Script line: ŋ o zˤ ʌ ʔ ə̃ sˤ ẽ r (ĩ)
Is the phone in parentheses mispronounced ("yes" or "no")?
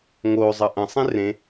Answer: yes